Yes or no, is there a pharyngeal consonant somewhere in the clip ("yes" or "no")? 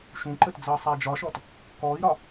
no